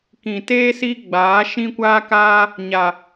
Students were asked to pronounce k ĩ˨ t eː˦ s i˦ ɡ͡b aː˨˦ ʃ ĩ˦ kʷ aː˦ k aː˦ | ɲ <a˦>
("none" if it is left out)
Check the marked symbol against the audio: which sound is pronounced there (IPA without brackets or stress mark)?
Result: a˨